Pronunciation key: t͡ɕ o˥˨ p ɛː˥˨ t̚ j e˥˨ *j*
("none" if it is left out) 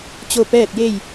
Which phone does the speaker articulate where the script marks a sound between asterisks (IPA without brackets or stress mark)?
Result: j